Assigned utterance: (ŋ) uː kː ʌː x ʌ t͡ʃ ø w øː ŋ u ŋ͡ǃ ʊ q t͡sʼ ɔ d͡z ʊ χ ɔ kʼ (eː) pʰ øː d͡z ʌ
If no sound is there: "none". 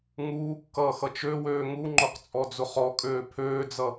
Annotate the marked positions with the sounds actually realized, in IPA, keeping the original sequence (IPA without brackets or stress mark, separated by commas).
ŋ, øː